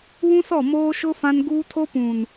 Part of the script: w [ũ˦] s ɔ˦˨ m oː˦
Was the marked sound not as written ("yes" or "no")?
no